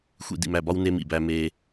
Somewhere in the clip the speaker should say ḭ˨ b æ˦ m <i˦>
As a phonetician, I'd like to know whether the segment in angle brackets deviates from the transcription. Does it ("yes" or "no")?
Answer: yes